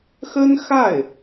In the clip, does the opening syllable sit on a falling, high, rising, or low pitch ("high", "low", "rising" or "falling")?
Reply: high